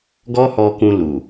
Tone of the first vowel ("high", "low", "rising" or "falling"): high